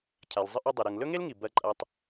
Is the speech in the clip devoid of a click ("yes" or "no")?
no